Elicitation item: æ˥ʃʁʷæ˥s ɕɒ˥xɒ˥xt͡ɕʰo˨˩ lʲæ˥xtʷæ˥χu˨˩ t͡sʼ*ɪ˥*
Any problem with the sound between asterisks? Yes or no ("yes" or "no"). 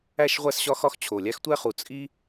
yes